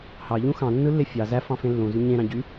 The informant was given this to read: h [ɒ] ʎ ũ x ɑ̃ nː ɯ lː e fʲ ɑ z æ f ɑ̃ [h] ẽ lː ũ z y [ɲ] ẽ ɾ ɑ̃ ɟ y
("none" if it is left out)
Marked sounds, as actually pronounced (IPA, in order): ɑ, f, ɲ

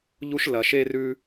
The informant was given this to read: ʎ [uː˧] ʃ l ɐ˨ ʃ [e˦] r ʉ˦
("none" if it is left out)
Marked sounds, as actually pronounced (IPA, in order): u˧, e˦

